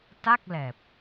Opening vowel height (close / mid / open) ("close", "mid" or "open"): open